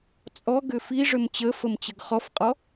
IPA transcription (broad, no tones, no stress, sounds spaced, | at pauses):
t͡sʼ ɔ ɡ ʏ f i ʐ ʏ m t͡ɕ ə f ə m t͡ɕ ə ɡ χ ɔ f qʼ ɔ